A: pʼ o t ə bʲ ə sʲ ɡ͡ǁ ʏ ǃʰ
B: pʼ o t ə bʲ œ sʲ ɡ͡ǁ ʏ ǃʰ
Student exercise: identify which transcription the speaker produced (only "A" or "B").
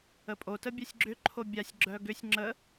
B